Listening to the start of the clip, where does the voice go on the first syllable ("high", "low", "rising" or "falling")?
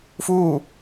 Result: falling